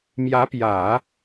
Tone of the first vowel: rising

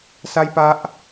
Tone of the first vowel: high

